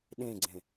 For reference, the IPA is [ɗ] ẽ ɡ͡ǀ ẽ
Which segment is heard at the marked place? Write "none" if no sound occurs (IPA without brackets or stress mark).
ɗ